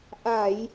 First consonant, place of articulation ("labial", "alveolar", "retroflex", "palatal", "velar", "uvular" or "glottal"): glottal